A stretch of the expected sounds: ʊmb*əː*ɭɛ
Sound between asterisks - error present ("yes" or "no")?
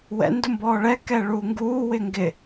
yes